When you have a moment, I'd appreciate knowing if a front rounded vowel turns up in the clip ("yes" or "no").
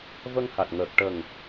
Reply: no